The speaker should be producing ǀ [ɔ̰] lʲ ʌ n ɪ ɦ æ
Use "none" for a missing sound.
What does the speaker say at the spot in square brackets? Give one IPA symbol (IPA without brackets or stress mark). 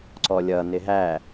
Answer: ɔ